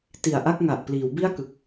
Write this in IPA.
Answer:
ti˨˩a̯ʔa˥˩k̚ŋa˨˩ʔ pliː˩˦wbi˥˩a̯kɯ˨˩k̚

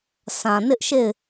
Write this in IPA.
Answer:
sʰã˨nɪ˦ʔʃe˦˨ɪ̯

